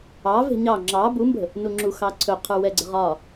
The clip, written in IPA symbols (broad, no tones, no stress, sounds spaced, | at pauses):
ɑ v e̤ ɲ ɑ ŋ͡ǁ ɑ b u m b ə̤ | n u ŋ͡ǁ u x ɑ ǀʰ ɵ qʰ ə˞ w ɛ ɡ͡ǀ ə̤ ʁ ɒ